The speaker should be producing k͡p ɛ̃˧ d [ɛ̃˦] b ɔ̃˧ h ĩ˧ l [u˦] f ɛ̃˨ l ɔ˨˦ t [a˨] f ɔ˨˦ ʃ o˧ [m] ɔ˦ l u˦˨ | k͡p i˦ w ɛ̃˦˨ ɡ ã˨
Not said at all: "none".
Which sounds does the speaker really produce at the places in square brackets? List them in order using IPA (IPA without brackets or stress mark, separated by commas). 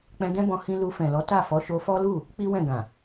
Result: ɛ̃˦, u˧, a˦˨, f